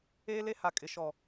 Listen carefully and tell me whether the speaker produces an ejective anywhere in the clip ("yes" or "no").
yes